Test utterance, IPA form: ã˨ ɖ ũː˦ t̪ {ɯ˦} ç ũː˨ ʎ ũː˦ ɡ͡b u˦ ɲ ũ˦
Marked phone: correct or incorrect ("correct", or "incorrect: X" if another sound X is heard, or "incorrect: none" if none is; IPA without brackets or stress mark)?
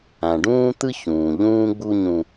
correct